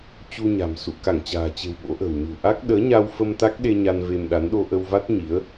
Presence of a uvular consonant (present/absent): absent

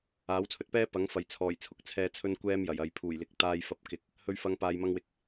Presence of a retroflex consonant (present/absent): absent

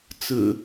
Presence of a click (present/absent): absent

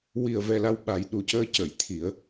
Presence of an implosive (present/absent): present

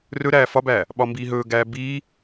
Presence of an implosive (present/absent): present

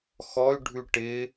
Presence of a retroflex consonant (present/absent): present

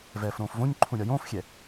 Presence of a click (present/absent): present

